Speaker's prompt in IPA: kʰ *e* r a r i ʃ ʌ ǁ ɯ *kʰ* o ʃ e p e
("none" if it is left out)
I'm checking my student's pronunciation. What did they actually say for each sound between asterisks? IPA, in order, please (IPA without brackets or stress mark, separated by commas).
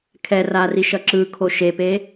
ɛ, kʰ